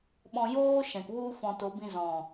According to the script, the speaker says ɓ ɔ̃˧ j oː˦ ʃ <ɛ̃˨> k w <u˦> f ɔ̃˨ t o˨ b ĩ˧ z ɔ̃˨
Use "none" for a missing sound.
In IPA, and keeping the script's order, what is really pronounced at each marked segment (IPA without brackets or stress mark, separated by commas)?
ɛ̃˨, u˦